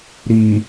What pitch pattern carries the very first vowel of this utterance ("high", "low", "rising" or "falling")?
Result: low